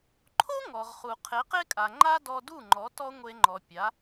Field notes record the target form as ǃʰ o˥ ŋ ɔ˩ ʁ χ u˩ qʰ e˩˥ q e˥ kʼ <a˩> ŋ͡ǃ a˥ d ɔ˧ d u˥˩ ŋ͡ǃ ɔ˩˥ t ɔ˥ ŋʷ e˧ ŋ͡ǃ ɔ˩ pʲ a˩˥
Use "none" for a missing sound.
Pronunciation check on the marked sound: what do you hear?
a˩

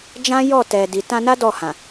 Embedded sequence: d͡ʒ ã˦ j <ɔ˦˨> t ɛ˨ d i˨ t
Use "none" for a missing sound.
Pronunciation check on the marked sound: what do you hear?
ɔ˦˨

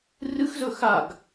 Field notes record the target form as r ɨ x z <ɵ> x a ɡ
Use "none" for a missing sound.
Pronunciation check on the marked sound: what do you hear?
ɵ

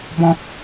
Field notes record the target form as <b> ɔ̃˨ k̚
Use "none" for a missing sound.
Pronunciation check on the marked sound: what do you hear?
b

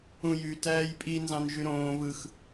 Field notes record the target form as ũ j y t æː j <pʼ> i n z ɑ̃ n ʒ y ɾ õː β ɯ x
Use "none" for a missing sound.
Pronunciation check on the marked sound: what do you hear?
pʼ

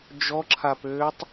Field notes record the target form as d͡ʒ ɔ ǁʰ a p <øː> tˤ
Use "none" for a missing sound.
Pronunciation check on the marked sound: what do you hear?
øː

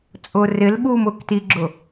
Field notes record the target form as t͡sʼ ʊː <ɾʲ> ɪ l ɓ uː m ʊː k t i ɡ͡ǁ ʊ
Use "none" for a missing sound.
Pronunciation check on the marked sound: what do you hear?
r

